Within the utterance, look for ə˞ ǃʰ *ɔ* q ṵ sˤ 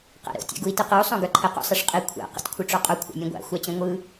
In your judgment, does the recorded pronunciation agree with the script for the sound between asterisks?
no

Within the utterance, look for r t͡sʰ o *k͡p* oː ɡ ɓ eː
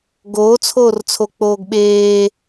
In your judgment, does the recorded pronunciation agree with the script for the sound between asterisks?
yes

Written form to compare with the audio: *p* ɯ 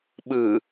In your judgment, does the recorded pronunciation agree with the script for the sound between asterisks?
no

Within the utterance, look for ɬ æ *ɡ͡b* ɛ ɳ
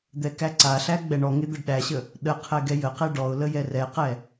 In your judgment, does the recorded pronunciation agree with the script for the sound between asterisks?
yes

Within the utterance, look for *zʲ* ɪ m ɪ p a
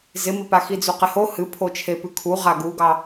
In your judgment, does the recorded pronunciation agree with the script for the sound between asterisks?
no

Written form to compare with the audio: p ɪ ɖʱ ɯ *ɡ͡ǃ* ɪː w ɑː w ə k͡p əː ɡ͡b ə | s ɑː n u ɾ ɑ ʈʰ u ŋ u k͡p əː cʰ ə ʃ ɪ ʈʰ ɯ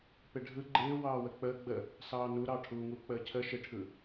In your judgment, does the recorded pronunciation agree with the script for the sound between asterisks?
yes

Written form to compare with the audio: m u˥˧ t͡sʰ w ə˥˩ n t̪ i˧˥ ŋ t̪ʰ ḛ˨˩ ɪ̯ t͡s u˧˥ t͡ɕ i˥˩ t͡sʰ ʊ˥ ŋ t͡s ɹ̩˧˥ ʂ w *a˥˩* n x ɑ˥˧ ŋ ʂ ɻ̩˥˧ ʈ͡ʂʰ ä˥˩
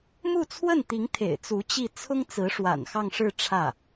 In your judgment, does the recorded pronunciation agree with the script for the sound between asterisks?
no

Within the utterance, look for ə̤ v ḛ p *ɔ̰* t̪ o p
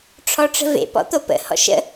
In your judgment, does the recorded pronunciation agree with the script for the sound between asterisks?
yes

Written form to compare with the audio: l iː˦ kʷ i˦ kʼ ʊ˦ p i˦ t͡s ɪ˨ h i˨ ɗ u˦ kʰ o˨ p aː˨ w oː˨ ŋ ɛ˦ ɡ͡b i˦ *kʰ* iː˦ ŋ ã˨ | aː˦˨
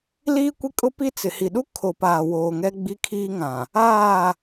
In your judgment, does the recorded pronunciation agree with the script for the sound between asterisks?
yes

